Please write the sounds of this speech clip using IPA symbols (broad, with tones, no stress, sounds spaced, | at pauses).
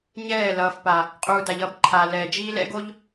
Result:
ɲ ɛː˦˨ l ʌː˨ f p a˨ | qʼ uː˨ d a˨ ʎ ʌː˦ b ǃʰ aː˨ l ɛː˨ d͡ʒ iː˦ l ɛ̰˦ ɡ o˦ ʎ